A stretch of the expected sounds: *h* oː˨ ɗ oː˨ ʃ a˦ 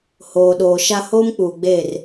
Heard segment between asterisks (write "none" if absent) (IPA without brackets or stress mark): h